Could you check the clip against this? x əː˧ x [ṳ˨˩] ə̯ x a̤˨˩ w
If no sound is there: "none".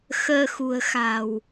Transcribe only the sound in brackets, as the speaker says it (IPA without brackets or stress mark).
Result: ṳ˨˩